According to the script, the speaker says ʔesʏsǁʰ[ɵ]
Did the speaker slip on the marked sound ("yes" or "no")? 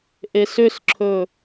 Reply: no